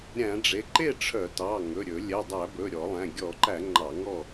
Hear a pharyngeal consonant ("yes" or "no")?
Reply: no